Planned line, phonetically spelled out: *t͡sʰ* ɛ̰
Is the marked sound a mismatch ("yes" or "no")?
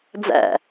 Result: yes